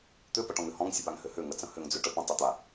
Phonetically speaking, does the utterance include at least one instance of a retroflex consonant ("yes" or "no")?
yes